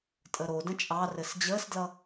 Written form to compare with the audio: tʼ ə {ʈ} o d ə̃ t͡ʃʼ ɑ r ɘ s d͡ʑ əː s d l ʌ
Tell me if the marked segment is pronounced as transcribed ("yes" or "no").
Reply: no